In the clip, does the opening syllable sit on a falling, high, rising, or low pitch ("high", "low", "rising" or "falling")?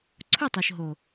falling